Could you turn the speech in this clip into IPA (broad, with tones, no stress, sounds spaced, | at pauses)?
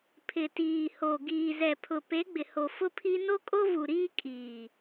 pʰ ɪ˨ t iː˨ h o˨ ɡ iː˨ z ɛ˨ pʰ ʊ˨ p e˨˦ ɡ͡b ɪ˨ h o˨ f ʊ˦ pʰ i˦ n o˦ kʼ o˦ v u˨ ɾ iː˦ kʼ iː˨